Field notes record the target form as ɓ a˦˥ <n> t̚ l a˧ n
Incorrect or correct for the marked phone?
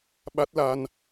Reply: incorrect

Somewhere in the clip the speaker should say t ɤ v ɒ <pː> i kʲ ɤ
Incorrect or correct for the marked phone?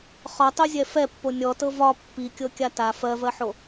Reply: correct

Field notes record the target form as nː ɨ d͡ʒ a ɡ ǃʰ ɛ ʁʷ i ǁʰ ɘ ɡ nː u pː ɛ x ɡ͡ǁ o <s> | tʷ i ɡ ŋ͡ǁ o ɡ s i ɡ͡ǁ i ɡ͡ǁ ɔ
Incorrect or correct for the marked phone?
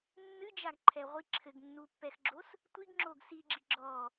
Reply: correct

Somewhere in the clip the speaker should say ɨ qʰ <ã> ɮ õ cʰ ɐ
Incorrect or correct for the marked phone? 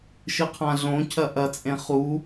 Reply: correct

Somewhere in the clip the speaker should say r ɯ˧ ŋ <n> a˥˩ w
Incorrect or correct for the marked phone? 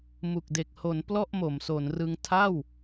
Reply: incorrect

